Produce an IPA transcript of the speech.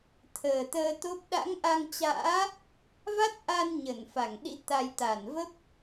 t̪ʰ əː˨˩ t̪ əː˧ t̪ o˦˥ p̚ ɗ a̰˧˥ ŋ ʔ a˧ ŋ t͡ɕ a̰ː˧˥ | v a˦˥ t̚ ʔ a˧ n ɲ ə˧˩ n f a˧˩ ŋ ɗ ḭ˧˥ t̪ a˧ j t̪ a˧˩ n v ə˦˥ p̚

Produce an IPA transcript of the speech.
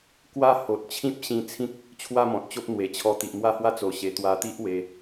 k w a˥˧ h o˨ t̚ t͡ɕʰ ĩ˦ p̚ ɕ ĩ˧ t͡sʰ ĩ˦ k̚ | t͡ɕʰ w a˥˧ m ɔ̃˨ t̚ t͡ɕ o˦ p̚ n̪ w e˨˩ t͡ɕʰ ɔ˧ t̪ i˨ ʔ m w a˥˧ h w a˦ t͡s o˨˩ ɕ e˨˩ t̪ w a˧ t̪ i˦ ʔ w e˧

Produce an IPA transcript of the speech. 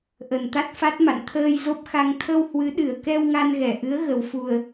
ʔ ə˨˩ n t̪ a˦˥ t̚ f a˦˥ t̚ m a̰˧˨ n t̪ʰ əː˧ j z o˦˥ p̚ x a˧ ŋ t̪ʰ ə˧ w h w ɨ˨˦ ɗ ɨ˨˩ ə̯ k ɛ˧ w ŋ a˧ n ɣ ɛ˧˩ ʔ ɨ˨˦ ə̯ ɣ ə˨˩ w f u˨˩ ə̯

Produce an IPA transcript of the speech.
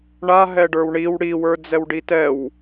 ɳ a ɦ ɛ ɖ ə˞ w ɳ i w ɽ i w ə˞ d͡z ɛ w ɖ i t ɛ w

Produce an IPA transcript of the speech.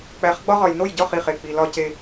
k͡p æ˨˦ χ ɡ͡b ɒ˦ ʁ ɒ˨ j n o˦˨ j ɟ ɒ˦˨ χ i˨ χ e˨ k͡p i˨ l ɒ˦ c e˦

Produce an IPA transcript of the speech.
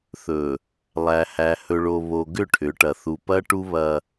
θ ɵ˨ | lˠ æ˨ h æ˨ h ɵ˨ ɭ o˨ β o˨ ɡ ʏ˦˨ ʈʰ ʏ˨˦ ʈ ɐ˨ θ u˨ p ɐ˦ ʈ u˦ β ɐ˦

